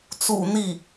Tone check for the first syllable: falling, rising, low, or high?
low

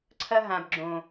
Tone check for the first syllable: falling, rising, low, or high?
high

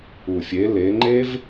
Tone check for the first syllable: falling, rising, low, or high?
low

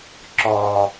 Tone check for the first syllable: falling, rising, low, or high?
low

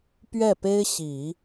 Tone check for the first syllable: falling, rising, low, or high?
falling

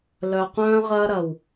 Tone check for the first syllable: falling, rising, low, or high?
low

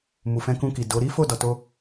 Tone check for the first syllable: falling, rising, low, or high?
low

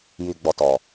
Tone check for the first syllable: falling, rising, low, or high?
low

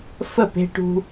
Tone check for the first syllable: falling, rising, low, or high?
falling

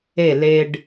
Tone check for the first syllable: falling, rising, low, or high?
falling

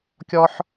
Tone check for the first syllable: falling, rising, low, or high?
high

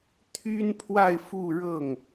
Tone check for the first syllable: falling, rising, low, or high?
high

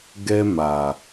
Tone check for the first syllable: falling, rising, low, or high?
high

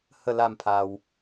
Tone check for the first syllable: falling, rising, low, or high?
falling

